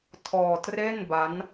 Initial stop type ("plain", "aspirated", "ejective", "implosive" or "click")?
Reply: aspirated